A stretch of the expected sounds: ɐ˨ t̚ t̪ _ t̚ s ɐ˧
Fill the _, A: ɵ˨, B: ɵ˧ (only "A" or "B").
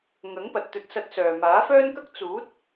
B